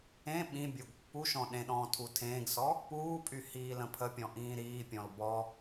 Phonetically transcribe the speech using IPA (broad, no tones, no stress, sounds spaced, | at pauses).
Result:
ẽ ɓ ĩ bʲ o ɡ pː u ʃ ɔ̃ ɗ ẽ ɗ ɔ̃ː tʰ u tʰ ẽː ɡ s ɔ | p uː pʼ y h iː l ə̃ pʰ ə pʲ ɔ̃ ʔ ĩː ɾ iː pʲ ɔ̃ l b ɔ